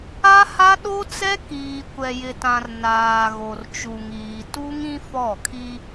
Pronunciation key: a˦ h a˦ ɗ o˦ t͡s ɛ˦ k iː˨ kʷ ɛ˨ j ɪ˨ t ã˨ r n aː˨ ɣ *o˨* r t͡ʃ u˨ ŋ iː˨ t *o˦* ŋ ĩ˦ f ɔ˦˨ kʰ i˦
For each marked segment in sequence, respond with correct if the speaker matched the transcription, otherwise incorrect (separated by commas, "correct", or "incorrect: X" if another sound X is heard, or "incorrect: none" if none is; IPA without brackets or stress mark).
correct, incorrect: u˦